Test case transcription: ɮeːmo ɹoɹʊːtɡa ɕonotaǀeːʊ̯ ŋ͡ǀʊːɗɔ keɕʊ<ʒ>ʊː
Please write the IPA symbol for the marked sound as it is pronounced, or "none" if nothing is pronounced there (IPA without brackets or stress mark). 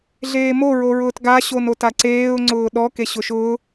ʃ